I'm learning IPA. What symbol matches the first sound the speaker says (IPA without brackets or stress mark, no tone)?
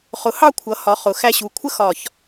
χ